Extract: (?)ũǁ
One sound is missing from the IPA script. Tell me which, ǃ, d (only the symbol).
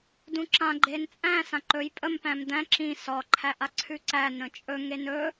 d